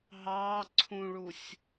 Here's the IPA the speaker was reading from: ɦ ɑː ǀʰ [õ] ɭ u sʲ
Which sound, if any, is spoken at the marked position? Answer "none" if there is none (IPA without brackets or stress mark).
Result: ũ